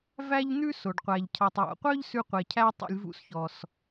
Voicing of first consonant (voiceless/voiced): voiced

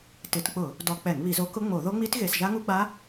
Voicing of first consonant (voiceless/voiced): voiceless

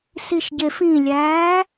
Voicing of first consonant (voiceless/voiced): voiceless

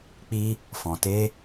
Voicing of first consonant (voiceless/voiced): voiceless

